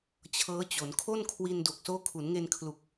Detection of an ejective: absent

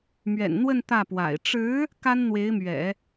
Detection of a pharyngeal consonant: absent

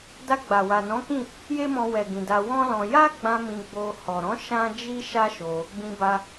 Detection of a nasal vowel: present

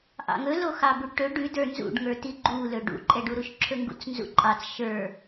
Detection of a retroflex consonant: present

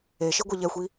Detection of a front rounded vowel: absent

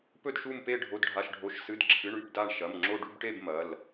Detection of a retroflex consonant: present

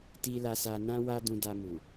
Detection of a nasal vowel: present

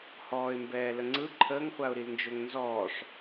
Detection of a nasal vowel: absent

